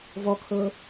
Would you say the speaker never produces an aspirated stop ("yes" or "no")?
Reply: no